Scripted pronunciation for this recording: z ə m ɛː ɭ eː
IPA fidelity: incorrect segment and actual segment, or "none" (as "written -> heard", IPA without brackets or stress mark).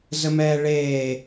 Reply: none